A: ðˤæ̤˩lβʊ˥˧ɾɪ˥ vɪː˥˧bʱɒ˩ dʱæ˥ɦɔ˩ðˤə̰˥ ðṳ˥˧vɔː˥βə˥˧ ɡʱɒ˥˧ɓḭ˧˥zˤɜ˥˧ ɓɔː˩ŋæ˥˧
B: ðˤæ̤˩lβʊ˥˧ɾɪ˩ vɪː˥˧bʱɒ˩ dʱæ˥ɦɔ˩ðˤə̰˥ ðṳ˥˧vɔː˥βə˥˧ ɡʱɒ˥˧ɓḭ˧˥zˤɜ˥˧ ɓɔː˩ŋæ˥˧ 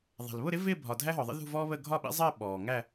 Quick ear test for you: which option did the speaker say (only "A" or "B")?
A